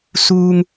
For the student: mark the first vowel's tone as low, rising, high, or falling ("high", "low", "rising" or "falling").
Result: high